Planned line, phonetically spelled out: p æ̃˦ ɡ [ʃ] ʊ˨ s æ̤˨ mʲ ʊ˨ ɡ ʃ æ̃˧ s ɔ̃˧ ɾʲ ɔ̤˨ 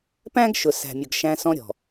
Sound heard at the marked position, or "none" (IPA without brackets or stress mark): ʃ